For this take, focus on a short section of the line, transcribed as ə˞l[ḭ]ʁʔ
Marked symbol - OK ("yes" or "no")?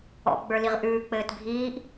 no